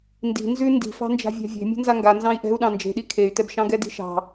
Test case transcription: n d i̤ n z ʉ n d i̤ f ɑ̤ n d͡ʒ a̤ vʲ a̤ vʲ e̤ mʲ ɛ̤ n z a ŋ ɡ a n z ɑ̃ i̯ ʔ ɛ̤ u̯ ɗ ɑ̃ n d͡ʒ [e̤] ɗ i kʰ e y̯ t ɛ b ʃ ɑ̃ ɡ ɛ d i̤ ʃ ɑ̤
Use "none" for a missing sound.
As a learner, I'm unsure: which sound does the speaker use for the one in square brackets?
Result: e̤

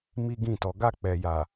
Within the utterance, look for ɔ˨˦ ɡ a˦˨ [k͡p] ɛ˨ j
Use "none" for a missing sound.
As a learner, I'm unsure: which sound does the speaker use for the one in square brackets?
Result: k͡p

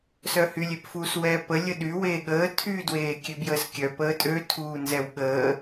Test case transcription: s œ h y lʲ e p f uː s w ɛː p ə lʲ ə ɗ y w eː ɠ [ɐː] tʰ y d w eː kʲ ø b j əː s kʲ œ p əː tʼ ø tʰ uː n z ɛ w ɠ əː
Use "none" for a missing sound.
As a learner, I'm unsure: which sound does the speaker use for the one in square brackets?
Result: əː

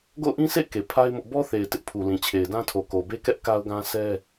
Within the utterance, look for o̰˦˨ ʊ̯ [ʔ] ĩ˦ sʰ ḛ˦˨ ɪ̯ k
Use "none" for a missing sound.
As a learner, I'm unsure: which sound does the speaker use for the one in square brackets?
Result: ʔ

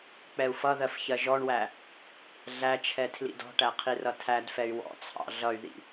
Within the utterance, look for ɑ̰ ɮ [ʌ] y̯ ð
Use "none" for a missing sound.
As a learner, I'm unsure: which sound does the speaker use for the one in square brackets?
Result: ʌ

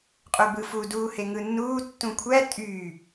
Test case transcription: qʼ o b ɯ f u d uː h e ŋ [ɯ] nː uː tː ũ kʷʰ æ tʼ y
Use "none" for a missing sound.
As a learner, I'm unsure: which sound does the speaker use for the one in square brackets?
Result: ɯ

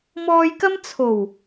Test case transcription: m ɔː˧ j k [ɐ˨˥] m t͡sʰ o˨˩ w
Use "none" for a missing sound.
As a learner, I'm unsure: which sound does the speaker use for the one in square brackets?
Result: ɐ˥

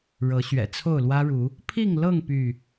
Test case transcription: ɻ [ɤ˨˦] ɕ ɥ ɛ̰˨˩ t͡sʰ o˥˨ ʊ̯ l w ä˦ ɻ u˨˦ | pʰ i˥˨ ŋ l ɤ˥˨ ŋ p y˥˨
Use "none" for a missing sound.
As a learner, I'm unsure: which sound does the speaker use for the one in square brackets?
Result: ɤ˨˦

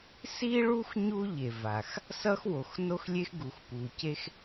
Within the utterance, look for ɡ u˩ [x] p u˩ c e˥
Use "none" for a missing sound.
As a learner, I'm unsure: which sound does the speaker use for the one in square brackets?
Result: x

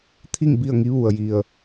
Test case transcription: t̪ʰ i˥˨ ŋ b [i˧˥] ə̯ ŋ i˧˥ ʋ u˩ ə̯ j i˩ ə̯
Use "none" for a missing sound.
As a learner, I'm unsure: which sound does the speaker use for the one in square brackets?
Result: i˥˨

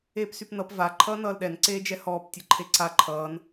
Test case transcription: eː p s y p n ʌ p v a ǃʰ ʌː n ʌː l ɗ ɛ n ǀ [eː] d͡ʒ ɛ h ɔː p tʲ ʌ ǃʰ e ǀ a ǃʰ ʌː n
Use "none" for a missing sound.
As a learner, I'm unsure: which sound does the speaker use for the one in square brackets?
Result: eː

